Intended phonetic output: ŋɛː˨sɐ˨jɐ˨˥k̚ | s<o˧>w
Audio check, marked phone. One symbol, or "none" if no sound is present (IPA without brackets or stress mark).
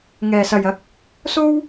o˥